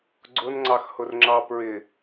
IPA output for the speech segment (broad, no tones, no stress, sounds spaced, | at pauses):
ɡ͡ǀ ʊ n ŋ͡ǀ ɑ x h ʊ r ŋ͡ǁ ɑ p ɹ ɪ